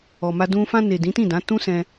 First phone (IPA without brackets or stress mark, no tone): ɔ